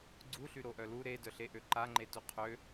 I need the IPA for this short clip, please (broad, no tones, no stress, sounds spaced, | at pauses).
ɡ͡ǀ u ɬ y ɾ o ʔ œ l u ɾ e d œ ɬ e ʔ ø ǃ a ŋ͡ǃ e t u qʰ ø